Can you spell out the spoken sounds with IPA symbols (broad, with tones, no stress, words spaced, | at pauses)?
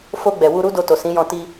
fo˧ɡ͡bɛ˨ wu˧ɾu˦ do˧to˨ sĩ˨˦jɔ̃˧ ti˧